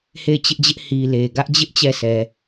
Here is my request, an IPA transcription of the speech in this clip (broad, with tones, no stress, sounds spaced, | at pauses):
h e˦˨ ɪ̯ t͡ɕ ɪ˦ ʔ d͡ʑ ɪ˦ ʔ h i˨ l e˨ ɡ ä˦ ʔ d͡ʑ ɪ˦ ʔ t͡ɕ ɛ˦˨ sʰ ɛ˨